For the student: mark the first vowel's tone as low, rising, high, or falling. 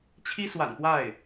high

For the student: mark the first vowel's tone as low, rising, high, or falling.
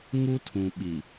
high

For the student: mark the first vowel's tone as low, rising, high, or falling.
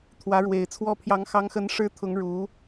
rising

